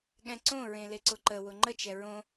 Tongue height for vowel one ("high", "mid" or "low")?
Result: mid